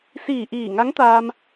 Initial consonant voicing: voiceless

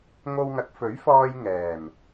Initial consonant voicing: voiced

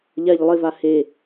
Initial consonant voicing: voiced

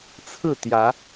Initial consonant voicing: voiceless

